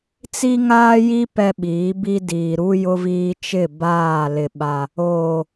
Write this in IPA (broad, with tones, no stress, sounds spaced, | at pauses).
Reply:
t͡s i˦ ŋ aː˦ j i˦ p ɛ˦ ɓ iː˨˦ b i˦ d iː˨ ɾ u˦ j ʊ˦ v iː˦ t͡ʃ ɪ˦˨ b aː˦˨ l ɪ˦ ɓ a˦ | oː˨